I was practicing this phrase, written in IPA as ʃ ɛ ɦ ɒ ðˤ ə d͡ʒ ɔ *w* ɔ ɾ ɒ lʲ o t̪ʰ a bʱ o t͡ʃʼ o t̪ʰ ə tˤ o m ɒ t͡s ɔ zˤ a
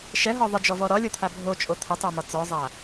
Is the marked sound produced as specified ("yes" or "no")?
no